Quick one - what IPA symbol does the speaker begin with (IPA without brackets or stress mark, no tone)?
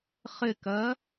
χ